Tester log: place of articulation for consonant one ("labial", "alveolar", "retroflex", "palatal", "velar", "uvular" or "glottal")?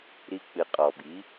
alveolar